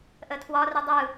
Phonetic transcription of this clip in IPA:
ʔ ə tʰ w ɒ r i dˤ ɯ

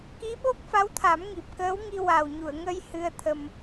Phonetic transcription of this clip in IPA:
k i˧˥ ɓ o˦˥ k̚ f a˧˥ w t̪ʰ a˨˩˦ m ŋ i˨˩ p̚ k əː˧˥ w ŋ i˧ w a˨˩ w ɲ u˨˩˨ ə̯ ŋ ə˧ j h ɨ˧ ə̯ t̪ʰ ə˧ m

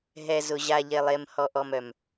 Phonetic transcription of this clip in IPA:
ɦ ɛ˨ z ʊ˨ ʑ a˨ ʎ e˨ lˠ e˨ m h ɔ˨ ʔ ɔ˨ m œ˨ m

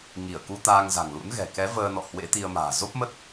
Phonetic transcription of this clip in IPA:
ŋ i˧˩ ə̯ k u˧ t̪ aː˧ ŋ z a̤˨˩ ŋ l ṵ˧˥ n ɣ ɛ̤˨˩ k ɛ˨˦ v əː˧ n ɔ̰˧˨ h w ḛ˧˥ t̪ i˧ ə̯ m a̤ː˨˩ z o˦˥ p̚ m ə˦˥ t̚

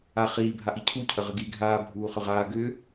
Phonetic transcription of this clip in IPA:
a χ iː bʱ a ʔ i cʰ u cʰ ə ʁ ə ɡ iː ɡʱ aː bʱ uː χ ʏ ʁ aː ɡ ʏː

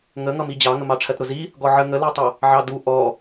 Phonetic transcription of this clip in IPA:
ŋ ə ŋ ʌ m i d͡ʑ ɑ ŋ ə m ɑ ʈ͡ʂʰ ɜ t ɾ ʊ z i | ɡ ɔ ʕ ə ŋ ə l ɜ tˤ ʌ | ʕ ɑ d u ʔ ɔ

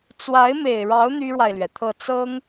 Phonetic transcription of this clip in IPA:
t͡s w a˧˥ ɪ̯ m e˨˩ ɪ̯ ɻ ɑ˧˥ ʊ̯ n̪ y˥ ɻ w a˨ ɪ̯ l ɥ ɛ˩ t̪ʰ ɤ˥˩ t͡s ɤ˥ ŋ

